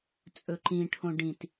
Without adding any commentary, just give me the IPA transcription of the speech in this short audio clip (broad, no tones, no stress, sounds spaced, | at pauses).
t͡sʼ ɵ ǃ ĩ ʈʰ õ ɖ ĩ t